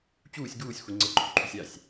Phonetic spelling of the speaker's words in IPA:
t͡ɕ uː sʲ ɡ uː sʲ xʷ i ŋ͡ǀ ə ǃʰ y ǃʰ y sʲ a sʲ

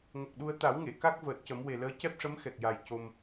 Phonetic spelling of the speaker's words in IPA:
ŋ ə˨˩ k̚ ɗ u˧ ə̯ t̪ a˨˩˦ w ŋ e˨˩˨ k a˦˥ k̚ v əː˨˩ t̚ c ə˨˩˦ m w e˨˩ l əː˧˥ c ɛ˦˥ p̚ ʂ ə˧˥ m x ɛ˨˩ k̚ j a˨˩ j c o˧ m

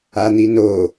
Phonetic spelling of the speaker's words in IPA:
a n̪ i n o

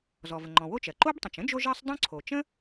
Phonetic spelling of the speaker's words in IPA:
z ɔ˩ v ə˩ ŋ͡ǃ ɔ̃˩ w o˥ t͡ʃ ɜ˩ ǃ o˥ b tˤ ə̃˩ t͡ʃ ə̃˥ d͡ʒ o˥ ʒ ɜ˥ sˤ dˤ õ˥ ǀʰ o˩ t͡ʃ ə̃˥

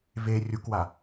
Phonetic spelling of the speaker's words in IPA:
v e rʲ u k w a

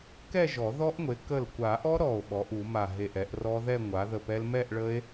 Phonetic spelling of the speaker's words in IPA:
k ɛ˥˧ ʒ ɔ˨˩˦ ð ɔ˦˥ ʔ ŋʷ e˩˥ k ə˧˩ l kʷ a˨˩˦ ʔ ɔ˦˥ ɾ ɔ˧˩ o̯ ɓ ɔ˩˥ ʔ u˨˩˦ m a˧˩ ɦ e˧˩ ʔ ɛ˨˩˦ ʔ r ɔ˦˥ ð ɛ˥˧ ŋʷ a˩˥ ð ə˧˩ p ɛ˦˥ l m ɛ˥˧ ʔ ɭ ə˦˥ e̯

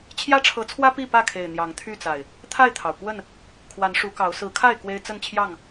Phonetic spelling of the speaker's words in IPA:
t͡ɕʰ j ä˦ ʈ͡ʂʰ ɤ˨˦ t͡sʰ w ä˦ p i˥˨ p ä˥˨ kʰ e˨˩ ɪ̯ n̪ j ɑ˨˦ ŋ t̪ʰ y˥˨ t͡s a˨˩ ɪ̯ | t̪ʰ a˥˨ ɪ̯ t̪ʰ ɑ˩ ʊ̯ k w ə˥˨ n | kʰ w a˨˦ n ʂ u˨˦ k ɑ˨˦ ʊ̯ s ɹ̩˨˦ kʰ a˥˨ ɪ̯ k w e˦ ɪ̯ t͡s ə˥˨ n t͡ɕʰ j ɑ˥˨ ŋ

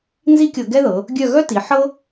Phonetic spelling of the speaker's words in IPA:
n z i˥ kʲ ɤ˧ ɡ ɛ˥ ð ɤ˩˧ | ɡʲ œ˥˧ ɣ œ˥ t i˩˧ ħ ɤ˥

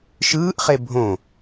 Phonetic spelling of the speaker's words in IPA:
ʃ ɯː ʔ χ e bʱ õ

